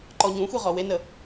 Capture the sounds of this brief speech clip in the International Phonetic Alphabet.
ǃɔɲũxʷi ʁɔwenə

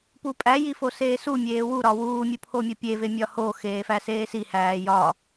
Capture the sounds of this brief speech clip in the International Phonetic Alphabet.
pupʼæ jifoseːsu mʲeːwu ɾɒwuː mʲupʰomʲopʲe vemʲɒho xeːfæseːsi hæːjɒ

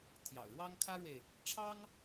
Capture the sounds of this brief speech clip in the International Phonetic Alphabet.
t̪ʰjɑ̰˨˩ʊ̯ɻwɑ˥ŋkʰä˥ɻwe˨ɪ̯ | ʈ͡ʂʰɑ˥ŋ

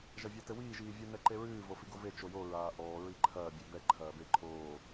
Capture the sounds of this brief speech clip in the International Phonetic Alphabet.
ʒɐvʲatɘwiː ʒiːvʲu nɛǃeɹɨː vofiɡove t͡ʃojo ɹaːʔɔː ɹiǃʰɐː bʲebɛ ǃʰɐːbe ǃʰoː

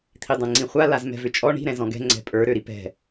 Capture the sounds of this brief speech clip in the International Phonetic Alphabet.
t̪ʰidˤẽŋ͡ǀĩχʷa lazmɛ̤vʏt͡ʃʼɔ ɳi̤ ɾɛ̃zɔ̃ɡɛ̤ ŋ͡ǀɛ̤pʼə˞ ɾøɾipɛ̤

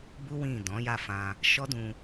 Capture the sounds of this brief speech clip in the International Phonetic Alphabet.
bu˦ wĩ˦˨ dɔ̃˨˦ja˦˨fã˧ | ʃɔ˦dũ˧

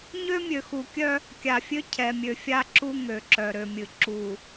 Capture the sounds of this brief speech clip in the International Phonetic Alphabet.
ɲø˦mʲø˨xu˨kʲœ˦ | kʲa˨fʲø˦ cʰɛ˨mʲø˨fʲa˦ǁu˦ ŋø˨ǁœ˨ɾø˨mʲɨ˨ ǁu˨

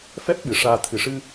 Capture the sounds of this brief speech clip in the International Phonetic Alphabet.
fɛ˦˥p̚ ɓɨ˨˩ʂaː˧ t̪ʰɨ˨˩ʂɨ˧

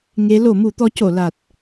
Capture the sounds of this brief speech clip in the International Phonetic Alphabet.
ŋe˧˥ lo˨˩˦mu˨˩˦t̪ɔ˧˥ co˨˩˨la˨˩t̚

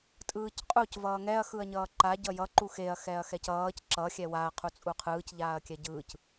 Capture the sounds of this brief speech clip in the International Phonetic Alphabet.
tʼɯːcqʼuc vʌːŋɛɐ̯ xɯɐ̯ɲʌːǃa ɟʌjʌ ǃuxeɐ̯ xɛɐ̯xɛcʌːc ǁʌ xʲɛwaɐ̯ qʰut͡sʼuqʰɯːc ʎaːɐ̯kʲɛɟɯːc

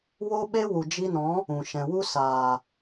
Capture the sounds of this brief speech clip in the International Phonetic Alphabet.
wo˦ɓe˦wu˨ d͡ʒi˧nɔ̃˨˦ | ũ˨ ʃɛ̃˨wu˦ saː˨

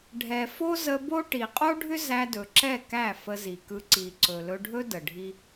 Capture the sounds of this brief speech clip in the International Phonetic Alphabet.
ɖʱɛ˨fo˦zə˧ bo˦ ʈi˨qʼo˦ɖʱʏ˦ zæ˧dɵ˨ǁɛ˦˨ kæ˦˨fə˧zi˨kɯ˧ ǀi˨ ǀɵ˨lɵ˧ɖʱɵ˦ də˨ɖʱi˦

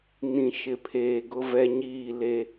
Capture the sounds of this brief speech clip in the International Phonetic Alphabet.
nĩ˨ ʃɪ˨pʰeː˨ ɡʊ˦vɛ˦ɲiː˦˨ le˦

